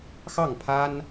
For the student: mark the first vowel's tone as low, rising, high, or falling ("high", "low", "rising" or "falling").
falling